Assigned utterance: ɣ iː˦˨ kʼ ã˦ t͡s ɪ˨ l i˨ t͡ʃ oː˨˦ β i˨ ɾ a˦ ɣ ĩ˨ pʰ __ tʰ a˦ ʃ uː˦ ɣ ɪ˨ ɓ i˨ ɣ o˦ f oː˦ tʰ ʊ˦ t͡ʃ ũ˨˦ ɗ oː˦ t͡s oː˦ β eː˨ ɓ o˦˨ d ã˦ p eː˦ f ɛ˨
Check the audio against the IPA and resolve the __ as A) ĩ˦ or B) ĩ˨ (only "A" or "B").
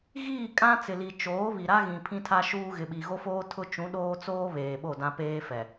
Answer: A